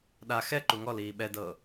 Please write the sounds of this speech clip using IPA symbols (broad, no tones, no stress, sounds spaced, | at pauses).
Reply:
ɗ a x ɛ ǃ u ŋ ɔ l iː ɓ ɛ d ɤː